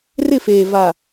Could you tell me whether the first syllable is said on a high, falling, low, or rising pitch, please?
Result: falling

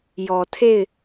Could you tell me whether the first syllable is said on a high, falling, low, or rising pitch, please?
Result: low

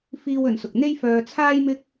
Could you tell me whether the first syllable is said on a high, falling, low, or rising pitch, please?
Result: high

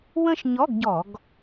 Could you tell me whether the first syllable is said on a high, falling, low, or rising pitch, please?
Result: falling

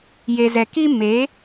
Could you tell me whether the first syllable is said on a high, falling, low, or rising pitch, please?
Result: low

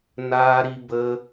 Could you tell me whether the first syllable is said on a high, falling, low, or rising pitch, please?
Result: high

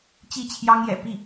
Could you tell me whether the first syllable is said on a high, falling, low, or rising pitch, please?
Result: falling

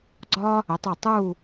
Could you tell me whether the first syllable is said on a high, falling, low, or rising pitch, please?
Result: high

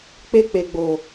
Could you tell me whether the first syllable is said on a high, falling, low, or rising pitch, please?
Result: high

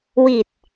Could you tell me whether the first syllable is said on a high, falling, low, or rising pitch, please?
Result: low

